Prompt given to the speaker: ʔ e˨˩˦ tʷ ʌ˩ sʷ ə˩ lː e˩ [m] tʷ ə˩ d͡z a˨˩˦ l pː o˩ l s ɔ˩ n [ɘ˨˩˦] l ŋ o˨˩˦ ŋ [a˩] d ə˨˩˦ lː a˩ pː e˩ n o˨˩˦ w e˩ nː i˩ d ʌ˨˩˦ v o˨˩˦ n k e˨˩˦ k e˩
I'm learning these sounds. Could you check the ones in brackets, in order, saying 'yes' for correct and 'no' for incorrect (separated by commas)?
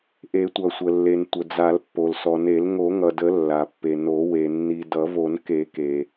no, no, no